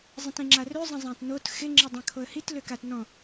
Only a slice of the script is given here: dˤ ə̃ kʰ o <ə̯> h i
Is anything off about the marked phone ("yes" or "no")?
no